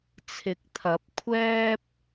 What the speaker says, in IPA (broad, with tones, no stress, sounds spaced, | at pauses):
t͡sʰ ɪ˨˥ k̚ t̪ʰ ɐ˨˥ p̚ kʷʰ ɛː˥ p̚